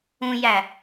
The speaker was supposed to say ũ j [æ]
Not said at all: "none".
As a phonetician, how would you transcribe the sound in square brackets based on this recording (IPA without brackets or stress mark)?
æ